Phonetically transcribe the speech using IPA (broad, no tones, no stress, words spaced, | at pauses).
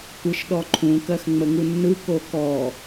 tʷɯʃɗɔǃʰũ kɜxŋ͡məŋunːɯ kokɔ